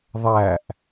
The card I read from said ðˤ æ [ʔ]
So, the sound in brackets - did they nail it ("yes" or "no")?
yes